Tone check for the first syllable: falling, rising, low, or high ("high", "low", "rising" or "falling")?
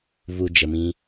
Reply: low